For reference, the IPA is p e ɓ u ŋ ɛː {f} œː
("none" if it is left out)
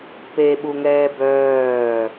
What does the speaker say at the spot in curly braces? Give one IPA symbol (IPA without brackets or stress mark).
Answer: b